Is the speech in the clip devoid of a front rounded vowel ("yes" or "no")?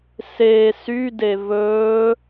no